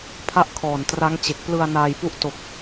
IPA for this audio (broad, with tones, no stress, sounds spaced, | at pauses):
pʰ a˦˥ ʔ kʰ ɔː˨˩ n t r a˦˥ ŋ t͡ɕ e˨˩ k̚ p l ɯ˧ a̯ n aː˧ j p u˦˥ ʔ t o˨˩ k̚